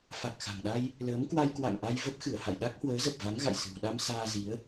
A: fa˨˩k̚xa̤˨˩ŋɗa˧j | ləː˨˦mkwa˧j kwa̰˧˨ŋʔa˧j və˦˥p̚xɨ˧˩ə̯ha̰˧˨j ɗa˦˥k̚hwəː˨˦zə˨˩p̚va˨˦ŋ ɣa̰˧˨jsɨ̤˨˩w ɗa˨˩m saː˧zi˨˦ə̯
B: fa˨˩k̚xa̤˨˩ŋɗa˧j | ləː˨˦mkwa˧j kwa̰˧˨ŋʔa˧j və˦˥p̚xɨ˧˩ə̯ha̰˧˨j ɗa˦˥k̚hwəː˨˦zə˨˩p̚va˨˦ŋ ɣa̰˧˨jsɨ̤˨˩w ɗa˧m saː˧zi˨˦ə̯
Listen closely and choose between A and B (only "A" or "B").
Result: B